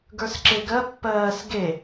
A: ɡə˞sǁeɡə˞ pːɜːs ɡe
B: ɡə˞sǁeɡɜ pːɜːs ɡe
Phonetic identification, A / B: B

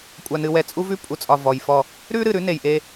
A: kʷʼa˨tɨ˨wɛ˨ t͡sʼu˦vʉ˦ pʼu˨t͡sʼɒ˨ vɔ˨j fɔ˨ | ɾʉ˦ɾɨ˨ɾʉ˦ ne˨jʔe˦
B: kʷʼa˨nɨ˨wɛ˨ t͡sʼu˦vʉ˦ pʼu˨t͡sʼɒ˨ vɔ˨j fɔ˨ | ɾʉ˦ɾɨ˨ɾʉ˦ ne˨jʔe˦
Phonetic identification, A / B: B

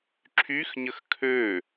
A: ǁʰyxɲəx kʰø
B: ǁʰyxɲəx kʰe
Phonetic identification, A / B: A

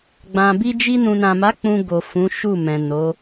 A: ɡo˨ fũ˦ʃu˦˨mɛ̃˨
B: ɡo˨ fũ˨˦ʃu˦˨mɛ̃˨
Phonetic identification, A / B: B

